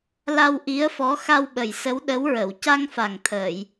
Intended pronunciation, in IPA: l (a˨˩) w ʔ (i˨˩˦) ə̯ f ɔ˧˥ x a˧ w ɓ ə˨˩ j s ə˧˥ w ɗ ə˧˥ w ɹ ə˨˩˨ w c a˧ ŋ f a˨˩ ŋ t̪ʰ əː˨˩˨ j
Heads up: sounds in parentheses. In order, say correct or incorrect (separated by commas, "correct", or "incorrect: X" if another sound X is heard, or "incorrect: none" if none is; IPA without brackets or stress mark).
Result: incorrect: a˧, incorrect: i˧˥